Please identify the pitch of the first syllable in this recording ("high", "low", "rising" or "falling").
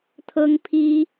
high